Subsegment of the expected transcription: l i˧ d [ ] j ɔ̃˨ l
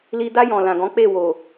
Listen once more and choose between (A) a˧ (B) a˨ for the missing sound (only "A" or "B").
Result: A